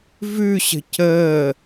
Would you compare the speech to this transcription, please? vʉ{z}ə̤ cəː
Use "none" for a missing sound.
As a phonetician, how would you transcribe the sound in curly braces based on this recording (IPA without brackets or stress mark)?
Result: ɕ